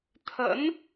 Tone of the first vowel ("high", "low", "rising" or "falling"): rising